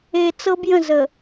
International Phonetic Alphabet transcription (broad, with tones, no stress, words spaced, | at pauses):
e˨t͡sɤ˦b jə̃˦˨zə˨